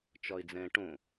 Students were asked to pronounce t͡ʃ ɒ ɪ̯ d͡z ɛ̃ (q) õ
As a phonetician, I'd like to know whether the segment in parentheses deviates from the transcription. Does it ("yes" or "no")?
yes